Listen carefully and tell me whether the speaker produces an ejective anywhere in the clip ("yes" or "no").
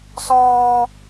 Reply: no